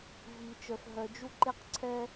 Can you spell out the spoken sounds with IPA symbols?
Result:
v i˨ t͡ʃ œ˨ f ɦ œ˨ d͡ʒ u˦ ǃ e˦ q ǀʰ ɛ˦

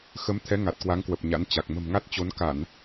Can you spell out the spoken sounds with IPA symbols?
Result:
x ə˨˦ m t̪ʰ ɛ˨˦ ŋ a˨˩ t̚ k w a˨˦ ŋ k w ə˨˩ p̚ ɲ a̰˧˥ n t͡ɕ a˨˩ k̚ m ə̤˨˩ m ŋ a˦˥ t̚ t͡ɕ o˨˦ n k a˧˩˨ n

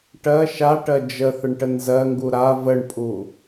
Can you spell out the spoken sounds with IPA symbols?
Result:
ʈ ɜ ʃ a ʈ ɜ d͡ʒ ə θ ə ɳ ʈ ə n z ɜ ŋ ɡ u ɾ a v ə ɳ pʼ u

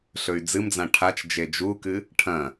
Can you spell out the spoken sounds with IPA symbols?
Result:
ɬ ɵ y̯ d͡z ɨ m d͡z ã ʈʰ a t͡ʃ d͡ʒ e d͡ʒ u k ɨ | ʈʰ ɐ̃

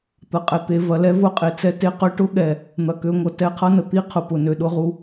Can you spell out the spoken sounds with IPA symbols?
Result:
t̪ ɐ˨ qʼ ɛ˨ t̪ e˨ v ɐ˨ l ɛ˦ v ʊ˦˨ qʼ e˨ t͡s ɛ˦ t e˦ q ø˦ ʈ ʊ˦ ɠ ɛ˨ | n̪ ɐ˨ k ø˨ ŋʷ ʌ˨ t ɛ˦ qʰ ʌ˦ n ə˨ t̪ i˦ qʰ ʊ˨ p ʊ˨ n ø˨ ɗ ʊ˦ ʁ u˦

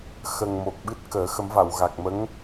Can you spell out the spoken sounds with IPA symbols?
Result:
x ə˨˩ ŋ m o˨˩ k̚ ɓ ɨ˦˥ t̚ k əː˨˩˦ x ə˨˩˦ m v a˨˩˨ w ɣ a˨˩ k̚ m ə˧˥ ŋ

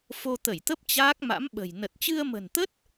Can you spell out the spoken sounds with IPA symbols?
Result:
f o˧ t̪ ə˧˩ j t̪ ə˦˥ p̚ t͡ɕ aː˦˥ k̚ m a̰˧˥ m ɓ ə̤˨˩ j n ə˨˩ t̚ t͡ɕ ɨ˧ ə̯ m ə̤˨˩ n t̪ ə˦˥ t̚

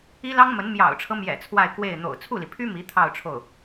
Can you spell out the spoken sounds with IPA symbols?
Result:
i˥ l ɑ˥ ŋ m ə˧˥ n m j ɑ̰˨˩ ʊ̯ ʈ͡ʂʰ ɤ˦ m j ɛ̰˨˩ t͡sʰ w a˥˧ ɪ̯ k w e˥˩ ɪ̯ n̪ o̰˨˩ ʊ̯ t͡sʰ u˥˩ l i˩ pʰ y˥ m i˧˥ t̪ʰ ɑ˥˧ ʊ̯ ʈ͡ʂʰ o˥˩ ʊ̯

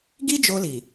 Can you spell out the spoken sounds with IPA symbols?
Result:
ɡ i˦ d͡ʒ o˧ l i˨

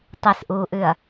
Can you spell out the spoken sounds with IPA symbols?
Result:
tˤ i s ʔ uː ʔ ʉ ɐ̯

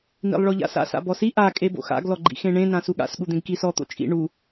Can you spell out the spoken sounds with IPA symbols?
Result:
n ḭ lˠ ɭ ɔ ʎ a̰ s a̰ s a̰ b ɔ s i ʔ a kʼ e b o̰ x a̰ ɡ l ɔ ɡ͡ǃ ḭ x ẽ ɳ ẽ n ã s u ɠ a̰ s ɠ u d̪ ẽ ɡ k i s ɔ t̪ o̰ t͡ʃʼ ḭ ɳ u

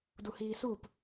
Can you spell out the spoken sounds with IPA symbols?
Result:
d u h iː s u p

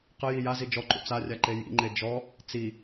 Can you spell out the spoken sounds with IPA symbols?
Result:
q ə j i j a z i d͡ʒ ɔ ǃ ṵ t͡s a rʲ a ǃ e j ḭ ŋ͡ǃ e d͡ʒ ɔ | t͡s i

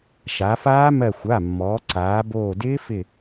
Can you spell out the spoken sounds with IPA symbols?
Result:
ʃ a˩˧ f aː˦˥ m ɜ˧˩ xʷ a˩˧˩ mː ɔː˩˧ ǀ aː˩˧ b oː˧˩ d ɪː˦˥ f ɪ˧˩

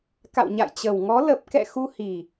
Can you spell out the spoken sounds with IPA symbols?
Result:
k a̰˧˨ w ɲ a̰˧˨ j t͡ɕ ə˨˩ w ŋ ɔ˨˦ l ə˨˩ p̚ k ɛ̰˧˨ x u˧ h i˨˩

